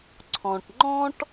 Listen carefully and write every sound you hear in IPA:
ǀʰ ɔ̃˩ ʈ ŋ͡ǃ ɔ̃˦ ʈ

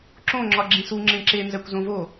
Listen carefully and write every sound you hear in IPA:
ǁ õ ŋ͡ǁ ɒ ɡ͡ǁ ĩ s u ŋ͡ǁ ẽ ǁ e n z æ kʷ z õ v o

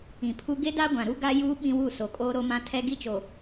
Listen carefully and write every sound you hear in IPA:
ĩ˨ pʰ u˦ ɡ e˦ d a˦ ɡʷ ã˨ ɾ u˦ ɡ a˦ j uː˦ ɓ ĩ˦ w u˦˨ s o˨ kʼ oː˦ ɾ o˦ m ã˦ tʰ ɛ˦ ɡ i˦ t͡ʃ o˨

